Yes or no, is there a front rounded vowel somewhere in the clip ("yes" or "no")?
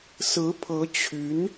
yes